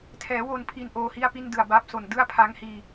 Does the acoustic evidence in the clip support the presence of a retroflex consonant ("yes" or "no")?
no